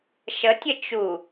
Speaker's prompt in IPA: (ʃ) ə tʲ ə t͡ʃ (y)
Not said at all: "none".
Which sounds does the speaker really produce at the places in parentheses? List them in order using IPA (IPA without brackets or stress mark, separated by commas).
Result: ʃ, u